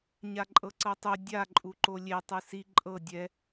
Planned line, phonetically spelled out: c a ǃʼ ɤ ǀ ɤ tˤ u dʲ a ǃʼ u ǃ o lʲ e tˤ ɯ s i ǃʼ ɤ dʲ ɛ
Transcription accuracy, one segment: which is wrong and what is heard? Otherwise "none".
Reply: c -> ɲ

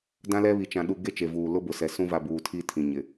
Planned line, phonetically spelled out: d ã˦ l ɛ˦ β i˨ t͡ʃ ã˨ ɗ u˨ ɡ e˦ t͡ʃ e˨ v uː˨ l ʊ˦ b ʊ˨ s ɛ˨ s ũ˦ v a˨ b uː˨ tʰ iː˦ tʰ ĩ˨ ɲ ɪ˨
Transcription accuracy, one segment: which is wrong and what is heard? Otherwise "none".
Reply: none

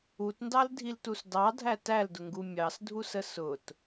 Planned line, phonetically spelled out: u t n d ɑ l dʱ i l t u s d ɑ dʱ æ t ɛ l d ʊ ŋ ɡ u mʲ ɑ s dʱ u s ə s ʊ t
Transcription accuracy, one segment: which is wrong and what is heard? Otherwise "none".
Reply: ɛ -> æ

